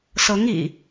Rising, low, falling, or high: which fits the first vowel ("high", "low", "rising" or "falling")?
rising